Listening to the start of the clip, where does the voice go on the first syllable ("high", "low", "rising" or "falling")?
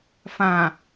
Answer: low